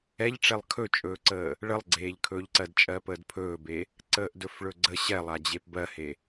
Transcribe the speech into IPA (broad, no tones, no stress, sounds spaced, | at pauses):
ɛ ʎ ʈ͡ʂ ɛ lˠ kʰ ɵ t͡ʃʼ ɵː ǀ əː | ɭ ə lˠ ɡ͡ǀ eː ʎ kʰ ɵː ʎ ǀ ɜ d t͡ʃʼ ɜ p əː d pʰ ɵː b e | ǀ əː ʔ d ɵ f ɭ ɵ ɡ͡ǀ ə ɕ ɛ lˠ a d͡ʑ e p b ɜ h e